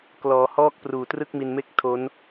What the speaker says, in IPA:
k l ɔː˩˦ h ɔː˦˥ k̚ p r uː˨˩ t r ɯ˥˩ k̚ m i˧ n m e˥˩ k̚ tʰ o˦˥ n

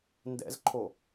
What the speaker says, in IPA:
n d ɛ̰ z ǃʰ o

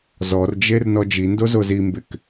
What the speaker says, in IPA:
z ɔ r d͡ʒ e r n ɔ d͡ʒ i n d o z o z i m b ɪ k

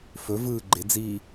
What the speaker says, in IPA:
f ɵ v ɯː ɡ͡ǃ ɪ d͡z iː

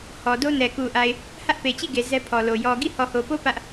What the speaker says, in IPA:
h ɔ˨ d o˦ n ɛ˨ k u˨ ʔ a˨ ɪ̯ | h ä˦ ʔ p e˨ t͡ɕ i˦˨ ɡ e˨ z ɛ˦ pʰ ɔ˨ l o˨ j ɔ˨ ɡ i˦˨ h ɔ˨ h o˨ p o˦ p ä˦ ʔ

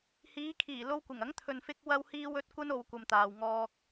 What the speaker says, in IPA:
h iː˨˧ kʰ iː˨˩ l o˧ w kʷ ɪ˨˩ ŋ ɐ˨˥ ŋ t̪ʰ ɵ˨ n f ɪ˧ k̚ w ɐ˧ w h iː˧ w ɵ˧ t̚ kʷ ɐ˥ n o˧ w kʷ ɐ˧ m t̪ aː˨ w ŋ ɔː˧ k̚

